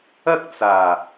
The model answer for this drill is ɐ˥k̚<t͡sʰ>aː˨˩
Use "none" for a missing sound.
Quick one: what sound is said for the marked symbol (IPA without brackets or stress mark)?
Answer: t͡s